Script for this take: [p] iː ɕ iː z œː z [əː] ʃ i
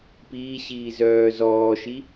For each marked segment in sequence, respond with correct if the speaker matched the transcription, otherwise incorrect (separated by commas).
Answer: correct, incorrect